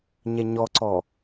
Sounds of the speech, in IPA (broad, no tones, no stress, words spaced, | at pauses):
ɲɛɲɔǀɔ